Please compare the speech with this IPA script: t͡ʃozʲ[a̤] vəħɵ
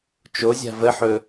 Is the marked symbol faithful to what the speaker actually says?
yes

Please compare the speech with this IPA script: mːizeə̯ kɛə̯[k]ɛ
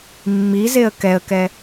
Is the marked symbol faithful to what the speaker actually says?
yes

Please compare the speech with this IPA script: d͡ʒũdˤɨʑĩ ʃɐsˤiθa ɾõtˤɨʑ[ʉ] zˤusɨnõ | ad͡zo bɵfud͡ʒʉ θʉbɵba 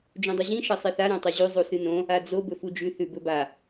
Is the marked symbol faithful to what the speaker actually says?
yes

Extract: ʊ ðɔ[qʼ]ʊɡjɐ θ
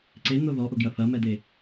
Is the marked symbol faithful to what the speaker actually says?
no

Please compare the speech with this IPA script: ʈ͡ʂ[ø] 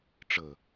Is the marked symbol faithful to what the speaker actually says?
no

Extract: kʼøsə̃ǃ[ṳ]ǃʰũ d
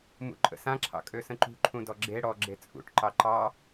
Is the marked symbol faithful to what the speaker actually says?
yes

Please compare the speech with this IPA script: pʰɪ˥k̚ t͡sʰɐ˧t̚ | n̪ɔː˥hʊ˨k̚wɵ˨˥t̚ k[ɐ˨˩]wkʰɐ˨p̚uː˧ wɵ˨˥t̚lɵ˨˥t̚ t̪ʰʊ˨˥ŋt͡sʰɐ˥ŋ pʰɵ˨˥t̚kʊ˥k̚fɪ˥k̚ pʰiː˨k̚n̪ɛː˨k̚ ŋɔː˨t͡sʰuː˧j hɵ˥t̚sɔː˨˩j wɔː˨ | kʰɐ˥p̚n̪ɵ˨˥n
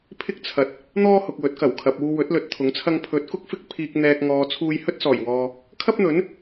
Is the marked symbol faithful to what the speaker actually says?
yes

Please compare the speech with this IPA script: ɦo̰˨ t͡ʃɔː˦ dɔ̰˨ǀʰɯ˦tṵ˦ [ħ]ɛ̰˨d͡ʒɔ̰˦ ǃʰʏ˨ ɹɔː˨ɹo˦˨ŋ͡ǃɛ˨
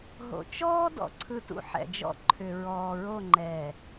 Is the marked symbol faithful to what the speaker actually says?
yes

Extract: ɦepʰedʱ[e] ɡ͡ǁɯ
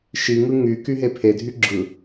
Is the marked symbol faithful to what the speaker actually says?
no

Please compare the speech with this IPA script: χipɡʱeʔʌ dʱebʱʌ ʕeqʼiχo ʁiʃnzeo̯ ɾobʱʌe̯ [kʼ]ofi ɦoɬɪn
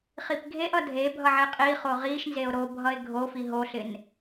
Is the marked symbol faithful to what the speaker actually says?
no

